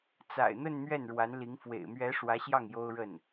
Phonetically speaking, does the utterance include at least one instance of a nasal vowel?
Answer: no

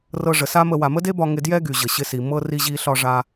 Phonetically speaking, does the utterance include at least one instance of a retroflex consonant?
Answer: yes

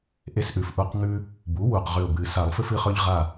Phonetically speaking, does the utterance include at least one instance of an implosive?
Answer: no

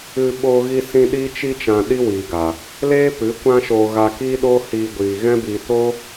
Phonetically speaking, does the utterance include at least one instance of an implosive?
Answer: yes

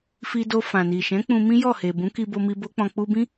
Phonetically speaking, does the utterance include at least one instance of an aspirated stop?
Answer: no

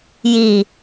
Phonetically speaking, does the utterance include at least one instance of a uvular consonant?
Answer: no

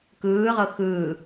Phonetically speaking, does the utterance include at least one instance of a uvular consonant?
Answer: yes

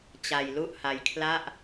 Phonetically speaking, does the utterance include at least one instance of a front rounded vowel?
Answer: no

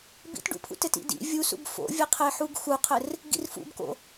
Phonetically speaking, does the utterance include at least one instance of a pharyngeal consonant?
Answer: yes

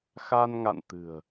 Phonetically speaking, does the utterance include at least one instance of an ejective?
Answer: no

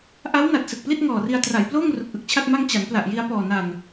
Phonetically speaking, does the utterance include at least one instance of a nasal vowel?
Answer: no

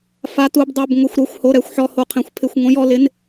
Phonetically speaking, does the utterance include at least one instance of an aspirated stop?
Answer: yes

